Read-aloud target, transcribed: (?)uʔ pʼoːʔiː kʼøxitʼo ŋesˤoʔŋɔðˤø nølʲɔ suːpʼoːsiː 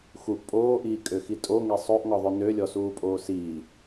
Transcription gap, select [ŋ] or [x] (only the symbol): x